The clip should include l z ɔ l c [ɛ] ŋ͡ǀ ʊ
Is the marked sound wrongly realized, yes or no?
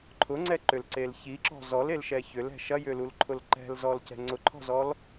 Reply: yes